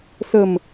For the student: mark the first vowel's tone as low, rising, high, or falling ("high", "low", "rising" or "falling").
low